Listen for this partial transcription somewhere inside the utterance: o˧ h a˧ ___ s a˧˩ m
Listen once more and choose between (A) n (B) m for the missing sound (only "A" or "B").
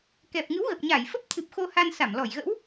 A